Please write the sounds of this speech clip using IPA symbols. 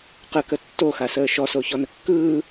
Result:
q ə k ə tː o x a s əː ʃ ɔ s o ç ɔ n ə kː ɯː

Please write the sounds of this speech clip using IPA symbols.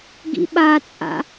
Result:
ɡ ḭ ɓ a t͡sʼ a̰

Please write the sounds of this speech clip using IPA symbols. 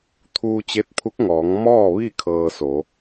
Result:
t̪ʰ uː˧ t͡ɕ e˧˥ t̚ pʰ u˧˥ k̚ ŋ ɔː˩˧ ŋ m ɔː˥˨ ʋ i˥˨ kʰ ɤː˧ s o˩˧

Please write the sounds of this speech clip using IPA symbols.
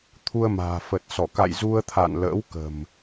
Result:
t̪ʰ u˧ ə̯ m a̤ː˨˩ f ə˨˩ t̚ s ɔ˧˩ k a̰˧˨ j z u˧ ə̯ t̪ʰ a̰˧˨ n l ə̰ː˧˥ w k ə̤˨˩ m

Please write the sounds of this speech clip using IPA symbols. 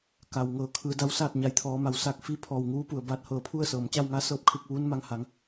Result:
k a˩ w ŋ ɤː˩˧ kʰ ɯː˩˧ d a˧˥ w s aː˥˨ t̚ ɲ a˩˧ j t̪ʰ ɔː˩˧ m a˩˧ w s aː˧ k̚ f i˧˥ pʰ ɔː˧˩ w ŋ uː˧˥ p u˩ ə̯ b aː˧ t̚ h ɤː˧˩ pʰ u˥˨ ə̯ s ɤː˩ m t͡ɕ a˥˨ w ŋ a˧˥ s ɤː˧˥ p̚ kʰ ɯː˧ k̚ ʋ uː˧˥ n m a˧ ŋ h a˩˧ ŋ

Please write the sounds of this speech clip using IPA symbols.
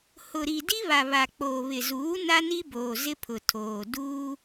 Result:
h ʊ˨ ɾ i˨ d i˦ β a˨ β a˨ k͡p oː˨ β ɪ˨ z uː˨˦ n a˦ n i˦ b oː˨ z ɪ˦ pʰ ʊ˨ tʰ oː˨ d uː˦

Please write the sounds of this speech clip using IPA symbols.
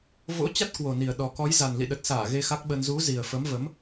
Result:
v o̰˧˥ t͡ɕ a˦˥ t̚ k w o˨˩ n i˨˩ ə̯ ɗ ɔ˨˩ k ɔ˨˦ j z a˨˩ n l ḭ˧˨ ɗ ə˨˩ t̚ s aː˧˩ ɣ e˧ x a˦˥ k̚ ɓ ə˧ n z u˨˦ z i˨˩ ə̯ f ə˨˦ m v ə˨˦ m

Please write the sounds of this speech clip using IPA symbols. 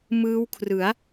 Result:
m ɯː˦˥ w kʰ r ɯ˩˦ a̯

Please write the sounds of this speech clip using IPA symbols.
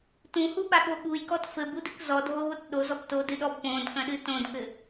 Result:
t ũ h u ɓ a ɠ o ɠ u j k ɔ t f ɘ b u d ɨ k z ɔ dʱ o β o t ɗ o z ɔ b t o d ɨ ɗ ɔ b p õ d k ɐ̃ ɗ ɨ t õ d k ɘ

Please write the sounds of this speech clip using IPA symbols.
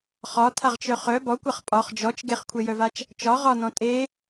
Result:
χ ɒ tʰ a ʁ t͡ʃ œ χ œ b ɔ kʷ a χ pʼ ɒ χ d͡ʒ ɔ t͡ʃ ɡ e χ kʷʰ e j œ v a t͡ʃ | t͡ʃ ɒ ʁ ɒ n ɔ̃ tʼ e

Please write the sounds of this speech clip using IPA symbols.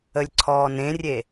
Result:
ə lʲ ǀʰ ɔː n ẽ rʲ e

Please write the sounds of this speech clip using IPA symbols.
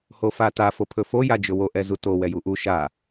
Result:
h o f a t a f o pʰ ɵ f o j a d͡ʒ ɵ w o ʔ ɛ z u t o w ɛ j u ʔ u ʃ a

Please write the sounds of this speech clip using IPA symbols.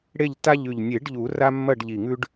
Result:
ɽ e˦˨ ʎ t a˦ ʎ ʉ˨˩ ʎ nʲ e˨˩˦ ɖ ʎ u˨˩˦ r a˦ mː ɐ˦˨ ɖ ʎ i˨˩ ŋ ʉ˦ ɖ

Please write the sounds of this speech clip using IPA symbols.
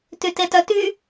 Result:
t y t e t œ t y

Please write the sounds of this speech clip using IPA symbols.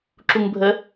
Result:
ǁ u ŋ bʱ ə

